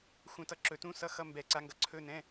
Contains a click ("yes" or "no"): yes